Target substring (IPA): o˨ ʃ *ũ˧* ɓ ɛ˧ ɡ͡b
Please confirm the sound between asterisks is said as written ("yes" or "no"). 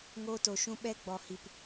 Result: yes